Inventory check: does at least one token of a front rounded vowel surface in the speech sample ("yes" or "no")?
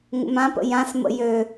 yes